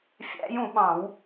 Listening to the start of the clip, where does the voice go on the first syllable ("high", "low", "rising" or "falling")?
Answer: rising